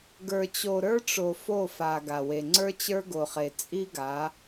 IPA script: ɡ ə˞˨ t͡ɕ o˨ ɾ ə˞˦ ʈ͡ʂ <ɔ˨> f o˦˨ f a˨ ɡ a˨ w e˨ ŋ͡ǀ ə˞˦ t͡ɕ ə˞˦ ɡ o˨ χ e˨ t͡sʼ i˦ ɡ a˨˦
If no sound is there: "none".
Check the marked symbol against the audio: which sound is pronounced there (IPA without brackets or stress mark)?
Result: o˨